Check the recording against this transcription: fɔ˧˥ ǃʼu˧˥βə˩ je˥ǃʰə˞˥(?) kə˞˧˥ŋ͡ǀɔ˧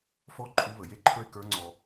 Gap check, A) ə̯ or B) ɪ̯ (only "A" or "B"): B